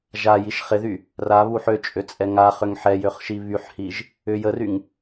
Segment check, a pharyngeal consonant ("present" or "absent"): present